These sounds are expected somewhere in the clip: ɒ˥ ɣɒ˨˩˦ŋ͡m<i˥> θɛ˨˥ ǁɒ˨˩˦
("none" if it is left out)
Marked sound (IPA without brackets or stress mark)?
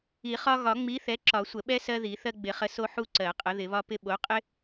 i˨˥